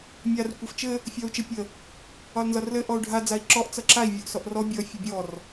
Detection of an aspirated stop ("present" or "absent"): absent